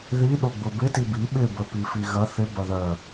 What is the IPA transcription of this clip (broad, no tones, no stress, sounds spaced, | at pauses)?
ð i ɗ o ɡ͡b ʊ b ɪ t i b i ɓ ɪ b ə p i f i ɣ ɐ θ ɪ b ɐ ð œ